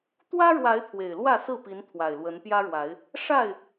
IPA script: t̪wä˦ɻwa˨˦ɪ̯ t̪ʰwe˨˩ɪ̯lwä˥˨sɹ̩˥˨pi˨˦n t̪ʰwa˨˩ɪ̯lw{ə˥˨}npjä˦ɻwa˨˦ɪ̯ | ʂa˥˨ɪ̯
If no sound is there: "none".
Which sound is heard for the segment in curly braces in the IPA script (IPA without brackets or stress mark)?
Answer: ə˨˦